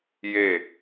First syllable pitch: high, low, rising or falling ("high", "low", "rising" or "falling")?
falling